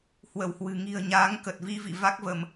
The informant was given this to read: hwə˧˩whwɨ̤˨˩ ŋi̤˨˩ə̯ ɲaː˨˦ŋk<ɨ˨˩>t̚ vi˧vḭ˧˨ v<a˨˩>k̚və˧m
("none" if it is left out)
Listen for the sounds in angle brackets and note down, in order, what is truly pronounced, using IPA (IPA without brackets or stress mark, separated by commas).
ə˨˩, a˦˥